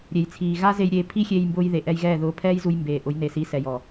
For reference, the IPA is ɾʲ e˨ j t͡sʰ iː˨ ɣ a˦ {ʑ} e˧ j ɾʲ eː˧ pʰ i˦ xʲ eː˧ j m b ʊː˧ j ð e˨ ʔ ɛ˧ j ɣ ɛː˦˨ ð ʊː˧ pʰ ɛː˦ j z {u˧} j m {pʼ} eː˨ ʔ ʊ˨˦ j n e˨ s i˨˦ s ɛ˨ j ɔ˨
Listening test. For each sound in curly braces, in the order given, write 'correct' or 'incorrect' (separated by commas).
incorrect, correct, incorrect